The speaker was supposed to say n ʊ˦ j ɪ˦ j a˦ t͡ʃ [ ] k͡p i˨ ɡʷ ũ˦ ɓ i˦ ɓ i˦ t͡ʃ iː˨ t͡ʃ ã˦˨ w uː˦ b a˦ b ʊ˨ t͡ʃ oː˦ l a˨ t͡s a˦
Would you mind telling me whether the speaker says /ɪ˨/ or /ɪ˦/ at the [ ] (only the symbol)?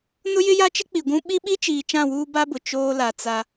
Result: ɪ˦